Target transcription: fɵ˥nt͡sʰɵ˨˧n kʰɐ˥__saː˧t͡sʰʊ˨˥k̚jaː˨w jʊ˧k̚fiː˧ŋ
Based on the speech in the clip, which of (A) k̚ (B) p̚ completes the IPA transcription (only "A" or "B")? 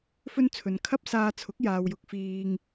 B